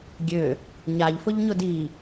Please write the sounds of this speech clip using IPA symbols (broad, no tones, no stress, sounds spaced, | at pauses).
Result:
ɡʲ ø | ɲ a ʎ f ʊ ʎ ɲ ʊ d i